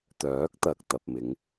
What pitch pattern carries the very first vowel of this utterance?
rising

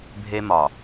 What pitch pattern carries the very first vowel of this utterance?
high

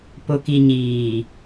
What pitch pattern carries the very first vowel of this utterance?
low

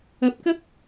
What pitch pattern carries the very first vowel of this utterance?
rising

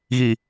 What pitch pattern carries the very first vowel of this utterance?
low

